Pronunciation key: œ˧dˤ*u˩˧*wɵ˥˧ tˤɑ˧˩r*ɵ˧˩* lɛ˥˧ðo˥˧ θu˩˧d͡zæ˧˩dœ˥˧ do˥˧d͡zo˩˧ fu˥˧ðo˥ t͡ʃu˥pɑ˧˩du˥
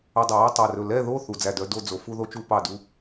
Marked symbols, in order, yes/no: yes, yes

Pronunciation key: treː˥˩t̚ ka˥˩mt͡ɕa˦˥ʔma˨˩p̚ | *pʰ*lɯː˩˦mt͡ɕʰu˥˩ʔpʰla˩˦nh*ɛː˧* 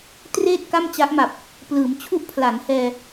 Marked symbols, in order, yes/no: no, yes

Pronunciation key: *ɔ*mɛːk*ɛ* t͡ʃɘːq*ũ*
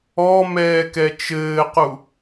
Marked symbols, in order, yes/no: yes, yes, no

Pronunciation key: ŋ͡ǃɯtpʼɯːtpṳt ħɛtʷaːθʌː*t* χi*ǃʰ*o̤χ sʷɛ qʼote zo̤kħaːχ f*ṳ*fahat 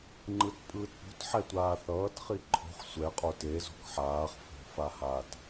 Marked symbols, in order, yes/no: yes, yes, no

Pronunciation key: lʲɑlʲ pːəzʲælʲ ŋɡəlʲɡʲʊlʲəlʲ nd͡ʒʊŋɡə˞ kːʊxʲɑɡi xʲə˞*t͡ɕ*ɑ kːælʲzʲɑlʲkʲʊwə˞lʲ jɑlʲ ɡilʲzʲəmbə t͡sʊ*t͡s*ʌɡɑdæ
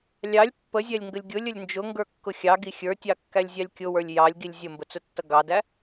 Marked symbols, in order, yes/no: no, no

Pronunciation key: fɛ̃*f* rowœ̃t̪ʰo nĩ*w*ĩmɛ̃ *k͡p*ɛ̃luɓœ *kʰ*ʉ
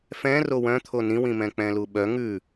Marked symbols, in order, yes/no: no, yes, yes, no

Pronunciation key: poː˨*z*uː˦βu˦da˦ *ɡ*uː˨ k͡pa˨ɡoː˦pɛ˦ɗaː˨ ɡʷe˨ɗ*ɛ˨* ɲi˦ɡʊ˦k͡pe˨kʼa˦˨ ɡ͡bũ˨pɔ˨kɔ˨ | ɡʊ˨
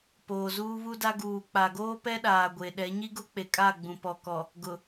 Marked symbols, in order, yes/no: yes, yes, no

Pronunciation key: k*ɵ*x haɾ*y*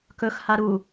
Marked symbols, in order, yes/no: yes, no

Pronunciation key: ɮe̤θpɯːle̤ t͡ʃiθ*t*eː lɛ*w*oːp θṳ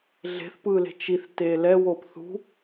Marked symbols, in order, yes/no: yes, yes

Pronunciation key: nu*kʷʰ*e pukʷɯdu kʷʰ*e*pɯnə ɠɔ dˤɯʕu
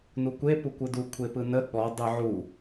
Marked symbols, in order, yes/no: no, yes

